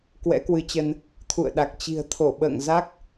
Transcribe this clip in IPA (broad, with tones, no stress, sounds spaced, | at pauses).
k w ɛ̰˧˥ k w ɨ˨˦ t͡ɕ ə˧ n | t̪ʰ ṵ˧˨ ə̯ ɗ a˨˩ k̚ t͡ɕ i̤˨˩ ə̯ t̪ʰ o˧˩ ɓ ə̰ː˧˨ ŋ z a˦˥ k̚